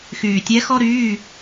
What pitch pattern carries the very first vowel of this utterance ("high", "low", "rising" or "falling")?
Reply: low